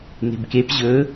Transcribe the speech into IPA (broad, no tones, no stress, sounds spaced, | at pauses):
n e̤ b k e p ʑ ɵ